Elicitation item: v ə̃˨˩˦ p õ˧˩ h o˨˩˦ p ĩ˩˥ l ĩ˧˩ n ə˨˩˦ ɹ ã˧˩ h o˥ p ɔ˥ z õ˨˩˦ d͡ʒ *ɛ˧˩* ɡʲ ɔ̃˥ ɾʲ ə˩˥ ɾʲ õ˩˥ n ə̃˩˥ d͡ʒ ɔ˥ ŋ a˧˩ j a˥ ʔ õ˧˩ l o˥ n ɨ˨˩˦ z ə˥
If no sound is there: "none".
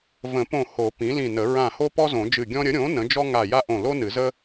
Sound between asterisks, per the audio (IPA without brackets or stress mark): ɨ˧˩